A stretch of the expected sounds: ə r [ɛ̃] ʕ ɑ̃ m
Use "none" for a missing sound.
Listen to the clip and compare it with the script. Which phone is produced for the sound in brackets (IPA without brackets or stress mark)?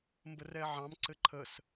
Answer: ɛ